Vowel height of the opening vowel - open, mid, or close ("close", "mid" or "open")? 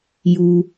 close